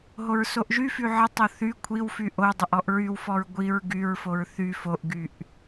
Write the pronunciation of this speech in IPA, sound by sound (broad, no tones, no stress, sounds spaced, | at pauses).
ɦ o ɹ s o ʔ ʒ y f y ʕ ə tˤ o θ y kʷʰ i w f y ʔ o dˤ ə ʔ ɔ ʔ ɹ y w f ɔ ɹ ɡʷ i ɹ ɡ y ɹ f o ɹ θ y f o ʔ ɡ y ʔ